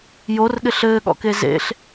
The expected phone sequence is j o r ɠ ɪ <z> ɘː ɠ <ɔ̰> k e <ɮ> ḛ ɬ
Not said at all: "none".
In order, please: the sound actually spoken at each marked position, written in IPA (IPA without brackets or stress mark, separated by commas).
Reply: ɬ, ɔ̰, z